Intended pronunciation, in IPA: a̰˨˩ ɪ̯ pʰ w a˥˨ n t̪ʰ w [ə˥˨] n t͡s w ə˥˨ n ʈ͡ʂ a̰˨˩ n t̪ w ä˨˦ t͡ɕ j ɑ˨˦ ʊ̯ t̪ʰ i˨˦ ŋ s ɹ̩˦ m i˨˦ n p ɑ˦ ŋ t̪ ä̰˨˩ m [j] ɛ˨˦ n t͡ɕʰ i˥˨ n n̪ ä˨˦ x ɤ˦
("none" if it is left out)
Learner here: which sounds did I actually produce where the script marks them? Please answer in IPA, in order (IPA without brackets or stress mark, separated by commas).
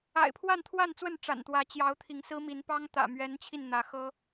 a˥˨, ɥ